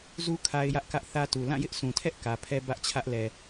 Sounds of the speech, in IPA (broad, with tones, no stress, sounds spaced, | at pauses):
z u˦ kʰ a˦ ɪ̯ j ä˦ ʔ k ä˦ ʔ θ ä˦ t u˨ l ã˦˨ j ɪ˦ ʔ s ũ˨ tʰ ɛ˦ ʔ k ä˨ pʰ ɛ˦ b ä˦ ʔ t͡ɕʰ ä˦ ʔ l ɛ˨